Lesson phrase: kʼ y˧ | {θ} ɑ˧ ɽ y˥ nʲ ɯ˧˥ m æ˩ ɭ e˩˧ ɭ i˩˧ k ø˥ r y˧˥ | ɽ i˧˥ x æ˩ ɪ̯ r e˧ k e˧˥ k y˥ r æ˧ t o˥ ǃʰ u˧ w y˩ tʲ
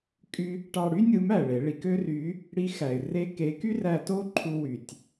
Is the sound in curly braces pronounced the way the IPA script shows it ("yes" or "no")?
no